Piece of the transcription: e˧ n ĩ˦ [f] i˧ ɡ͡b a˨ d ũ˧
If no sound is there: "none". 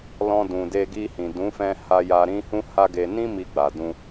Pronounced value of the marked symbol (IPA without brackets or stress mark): m